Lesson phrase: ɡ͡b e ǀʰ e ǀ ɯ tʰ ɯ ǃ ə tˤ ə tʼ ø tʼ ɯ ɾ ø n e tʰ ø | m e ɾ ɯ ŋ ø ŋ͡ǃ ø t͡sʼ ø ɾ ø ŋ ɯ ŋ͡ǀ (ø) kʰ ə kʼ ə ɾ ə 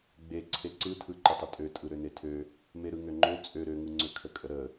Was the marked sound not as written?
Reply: no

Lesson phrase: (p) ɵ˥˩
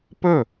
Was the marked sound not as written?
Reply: no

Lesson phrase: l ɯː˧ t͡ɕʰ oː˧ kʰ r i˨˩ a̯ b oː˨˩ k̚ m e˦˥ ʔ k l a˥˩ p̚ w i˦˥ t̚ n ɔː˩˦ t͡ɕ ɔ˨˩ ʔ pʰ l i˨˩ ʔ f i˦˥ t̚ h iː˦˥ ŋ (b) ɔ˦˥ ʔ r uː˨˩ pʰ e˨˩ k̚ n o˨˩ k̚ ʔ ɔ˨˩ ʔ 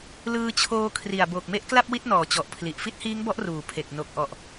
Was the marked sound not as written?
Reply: no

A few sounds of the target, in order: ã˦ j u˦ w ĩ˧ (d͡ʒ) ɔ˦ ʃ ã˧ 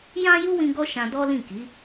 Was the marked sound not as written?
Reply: yes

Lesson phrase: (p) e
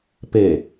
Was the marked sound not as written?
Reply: no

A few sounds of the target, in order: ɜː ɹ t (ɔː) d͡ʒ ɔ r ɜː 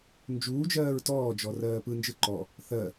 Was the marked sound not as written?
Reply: no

